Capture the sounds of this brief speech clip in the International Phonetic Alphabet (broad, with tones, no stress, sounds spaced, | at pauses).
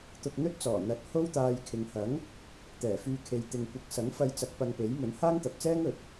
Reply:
t̪ ʊ˧ k̚ n̪ ɵ˥ t̚ t͡s ɔː˨˩ n̪ ɐ˨ t̚ h o˥ w t̪ aː˧ j kʰ ɪ˨ ŋ h ɐ˨˥ ŋ | t̪ ɛː˨˩ f yː˧ kʰ e˨˧ j t̪ ɪ˨ ŋ kʷ ɪ˨˥ k̚ s ɐ˨˥ ŋ f ɐ˧ j t͡s ɐ˨˥ k̚ p ɐ˧ ŋ p e˨˥ j m ɵ˨˥ n h aː˥ ŋ t̪ ɐ˨ p̚ t͡s ɛː˥ ŋ ɵ˨ t̚